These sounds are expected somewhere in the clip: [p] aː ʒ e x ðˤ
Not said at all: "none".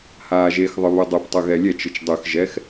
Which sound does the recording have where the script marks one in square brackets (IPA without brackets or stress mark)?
h